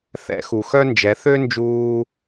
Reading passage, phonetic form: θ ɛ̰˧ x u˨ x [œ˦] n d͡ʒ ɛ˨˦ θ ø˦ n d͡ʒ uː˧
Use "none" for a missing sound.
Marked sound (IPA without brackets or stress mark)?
œ˦